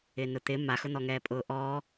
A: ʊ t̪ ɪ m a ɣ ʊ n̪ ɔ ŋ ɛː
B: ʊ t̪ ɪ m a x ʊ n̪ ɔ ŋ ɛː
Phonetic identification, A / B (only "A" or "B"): B